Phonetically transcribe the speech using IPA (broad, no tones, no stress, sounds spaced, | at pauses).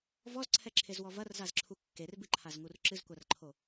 v ɔ z ǀʰ ɛ ǁʰ e z w ɔ v ɐ r z a z ǁʰ u kː e r b ɨ ǃʰ a z ŋ u r ǁ ɨ z kʷ a r ǃʰ o